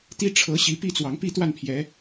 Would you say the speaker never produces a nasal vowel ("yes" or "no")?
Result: yes